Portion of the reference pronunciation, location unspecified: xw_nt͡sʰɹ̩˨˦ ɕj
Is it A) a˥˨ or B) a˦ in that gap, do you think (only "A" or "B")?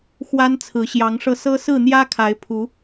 B